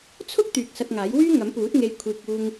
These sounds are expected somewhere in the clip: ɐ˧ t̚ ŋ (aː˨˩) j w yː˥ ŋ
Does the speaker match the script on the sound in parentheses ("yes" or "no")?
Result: no